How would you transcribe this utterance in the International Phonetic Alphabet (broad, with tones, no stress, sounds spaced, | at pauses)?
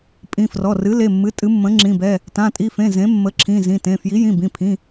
pʼ ĩ˩˧˩ f r ɔ˩˧˩ r ɨ˩˥ l e˩˧˩ mː ɨ˩˥ tʼ ɨ˩˥ mː ə̃˩˥ ŋ͡ǁ ĩ˩˧˩ b ɛ˩˧˩ | t ã˩˧˩ tʼ i˩˧˩ f ẽ˩˧˩ z ẽ˩˥ mː ə˩˥ ǁʰ ĩ˩˧˩ z ĩ˩˧˩ t ẽ˩˧˩ f j i˩˥ j ĩ˩˧˩ b ĩ˩˧˩ pʰ ĩ˩˧˩